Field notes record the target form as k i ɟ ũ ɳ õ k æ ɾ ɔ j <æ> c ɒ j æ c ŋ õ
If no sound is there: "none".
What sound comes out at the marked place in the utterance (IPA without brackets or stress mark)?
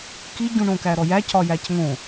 æ